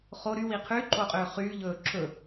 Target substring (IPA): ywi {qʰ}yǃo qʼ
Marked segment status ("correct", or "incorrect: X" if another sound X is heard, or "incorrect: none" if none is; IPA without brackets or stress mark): correct